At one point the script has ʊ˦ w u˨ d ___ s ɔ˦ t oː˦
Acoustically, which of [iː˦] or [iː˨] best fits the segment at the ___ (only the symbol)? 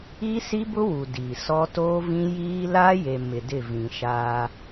iː˨